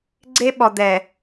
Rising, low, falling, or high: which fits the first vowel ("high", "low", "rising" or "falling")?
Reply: high